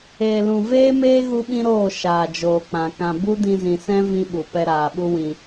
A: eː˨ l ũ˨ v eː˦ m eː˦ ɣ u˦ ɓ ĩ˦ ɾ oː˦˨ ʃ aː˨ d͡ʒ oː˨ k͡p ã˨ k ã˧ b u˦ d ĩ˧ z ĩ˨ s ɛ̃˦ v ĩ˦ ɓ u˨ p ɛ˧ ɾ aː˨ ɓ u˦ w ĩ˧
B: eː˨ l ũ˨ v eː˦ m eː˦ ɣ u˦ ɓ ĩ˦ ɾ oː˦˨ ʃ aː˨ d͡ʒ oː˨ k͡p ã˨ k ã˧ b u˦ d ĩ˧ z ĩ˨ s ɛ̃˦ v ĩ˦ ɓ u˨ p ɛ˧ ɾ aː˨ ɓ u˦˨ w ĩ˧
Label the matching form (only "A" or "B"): A